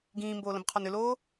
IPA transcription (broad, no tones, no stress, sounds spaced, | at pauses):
ɡ ĩː m b oː l ə̃ b qʰ ɔ n ʏ l oː